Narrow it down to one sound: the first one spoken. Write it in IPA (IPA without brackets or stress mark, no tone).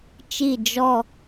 t͡ʃ